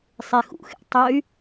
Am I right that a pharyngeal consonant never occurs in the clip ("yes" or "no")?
yes